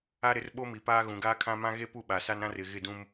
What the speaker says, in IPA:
a˦ɾɪ˨˦r ɓo˦mi˨paː˦ ɣũ˨ɡaː˦kʰã˦ mã˦ɣe˦pu˦˨ ɓa˨sa˦nɾã˦r ɪ˨ɣɪ˦˨dũ˦m

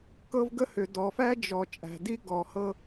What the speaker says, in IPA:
kɤ˦vɡə˦hʏ˨ dɔ˨fæ˦d͡ʒɔ˨ t͡ʃʼæ̤˨di˦ɡɔ˨hɤ˦

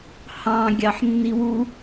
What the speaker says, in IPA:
hɑ̃ ɡʲɑħnːiwu

